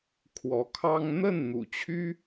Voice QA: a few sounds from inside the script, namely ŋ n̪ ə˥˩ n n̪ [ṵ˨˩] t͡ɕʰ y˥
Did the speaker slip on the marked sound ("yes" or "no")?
no